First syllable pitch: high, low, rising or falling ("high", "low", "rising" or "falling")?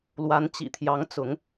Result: rising